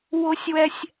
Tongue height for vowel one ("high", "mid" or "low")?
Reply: high